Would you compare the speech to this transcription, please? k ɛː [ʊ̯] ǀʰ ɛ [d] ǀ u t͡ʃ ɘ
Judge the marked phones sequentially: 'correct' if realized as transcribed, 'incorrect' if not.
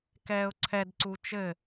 correct, correct

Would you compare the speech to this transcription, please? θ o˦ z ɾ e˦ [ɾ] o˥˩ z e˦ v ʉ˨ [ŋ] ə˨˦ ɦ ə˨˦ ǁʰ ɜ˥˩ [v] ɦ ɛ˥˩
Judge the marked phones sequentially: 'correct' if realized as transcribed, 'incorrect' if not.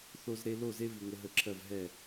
incorrect, correct, correct

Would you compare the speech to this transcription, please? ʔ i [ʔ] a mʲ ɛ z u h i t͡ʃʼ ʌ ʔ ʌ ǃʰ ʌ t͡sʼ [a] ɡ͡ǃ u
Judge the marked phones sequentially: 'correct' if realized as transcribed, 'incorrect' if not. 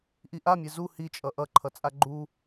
correct, correct

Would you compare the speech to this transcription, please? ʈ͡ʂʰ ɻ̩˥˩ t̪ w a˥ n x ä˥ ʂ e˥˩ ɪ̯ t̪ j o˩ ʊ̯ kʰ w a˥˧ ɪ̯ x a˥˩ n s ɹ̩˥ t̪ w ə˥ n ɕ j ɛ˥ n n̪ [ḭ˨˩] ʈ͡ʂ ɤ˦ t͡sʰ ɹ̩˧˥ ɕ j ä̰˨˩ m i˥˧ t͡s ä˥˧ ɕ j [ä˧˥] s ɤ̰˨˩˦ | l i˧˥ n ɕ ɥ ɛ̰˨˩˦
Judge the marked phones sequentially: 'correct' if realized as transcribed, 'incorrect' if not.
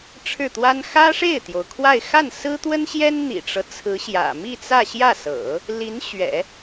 correct, incorrect

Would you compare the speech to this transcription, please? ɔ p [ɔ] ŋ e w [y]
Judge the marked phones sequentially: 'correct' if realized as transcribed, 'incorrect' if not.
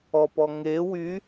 correct, correct

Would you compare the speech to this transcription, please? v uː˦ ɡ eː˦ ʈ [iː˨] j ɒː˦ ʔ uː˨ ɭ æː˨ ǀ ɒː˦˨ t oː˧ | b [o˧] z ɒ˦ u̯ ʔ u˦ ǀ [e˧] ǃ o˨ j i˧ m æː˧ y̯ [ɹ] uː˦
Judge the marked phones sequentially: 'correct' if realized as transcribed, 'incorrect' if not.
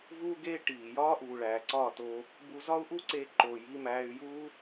correct, incorrect, correct, incorrect

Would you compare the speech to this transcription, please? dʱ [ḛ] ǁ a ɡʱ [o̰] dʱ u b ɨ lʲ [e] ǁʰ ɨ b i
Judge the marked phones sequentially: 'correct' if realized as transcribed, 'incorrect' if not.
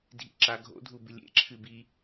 incorrect, correct, incorrect

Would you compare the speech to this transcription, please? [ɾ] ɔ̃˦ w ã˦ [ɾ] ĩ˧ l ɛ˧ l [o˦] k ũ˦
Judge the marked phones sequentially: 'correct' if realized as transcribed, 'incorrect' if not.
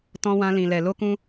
incorrect, incorrect, correct

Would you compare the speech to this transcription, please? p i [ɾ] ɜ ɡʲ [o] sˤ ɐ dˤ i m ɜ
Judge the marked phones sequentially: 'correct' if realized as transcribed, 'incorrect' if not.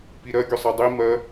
correct, correct

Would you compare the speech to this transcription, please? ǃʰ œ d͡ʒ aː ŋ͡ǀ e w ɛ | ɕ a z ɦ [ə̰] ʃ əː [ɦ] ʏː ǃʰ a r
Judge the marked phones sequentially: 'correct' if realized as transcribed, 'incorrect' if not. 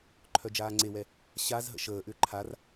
correct, incorrect

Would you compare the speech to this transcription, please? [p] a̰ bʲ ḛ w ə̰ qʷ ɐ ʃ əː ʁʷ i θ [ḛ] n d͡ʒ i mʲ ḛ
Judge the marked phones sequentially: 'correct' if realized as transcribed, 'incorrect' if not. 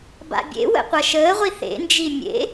incorrect, correct

